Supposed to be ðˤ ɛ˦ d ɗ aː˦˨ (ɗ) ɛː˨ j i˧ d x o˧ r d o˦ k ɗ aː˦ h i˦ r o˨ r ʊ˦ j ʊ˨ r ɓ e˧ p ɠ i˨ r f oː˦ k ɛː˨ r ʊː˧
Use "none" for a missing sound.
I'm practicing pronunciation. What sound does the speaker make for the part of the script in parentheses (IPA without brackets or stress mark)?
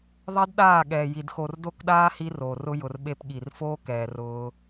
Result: ɠ